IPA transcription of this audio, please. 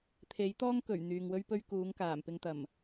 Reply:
t̪ʰ e˨˥ j t̪ ɔː˥ ŋ k ɵ˨˩ ɥ n̪ yː˨ ŋ w ɵ˥ ɥ p ɵ˥ ɥ k uː˨˥ ŋ k aː˨˩ m p ɪ˧ ŋ t̪ ɐ˨˩ m

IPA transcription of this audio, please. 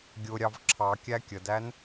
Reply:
ɡʲ ʊ ɾʲ ɑ v ǁʰ ɑ kʲ æ kʲ ə d æ n

